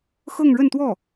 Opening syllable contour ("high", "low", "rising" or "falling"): falling